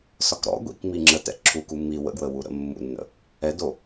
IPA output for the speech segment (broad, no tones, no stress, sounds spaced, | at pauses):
s ɒ k ɾ ɔ̰ ɡʷ ḭ k m i ŋ͡ǁ ə t ɛ̰ ǁʰ u k u mː i w ə̰ ɡ w ə w u ɾ ə̰ mː ṵ nː ə̰ | ɛ d o